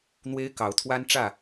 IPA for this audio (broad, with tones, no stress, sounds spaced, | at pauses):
n̪ w e˦ ɪ̯ k ɑ˨˦ ʊ̯ t̪ʰ w a˦ n ʈ͡ʂ ä˥˨